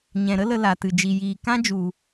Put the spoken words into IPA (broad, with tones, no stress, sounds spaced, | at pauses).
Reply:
ɲ ɛ̃˨ ɾ ə˦ l ə˧ l a˨ t ɨ˨ d͡ʒ i˨ j iː˨ k ã˦ d͡ʒ u˨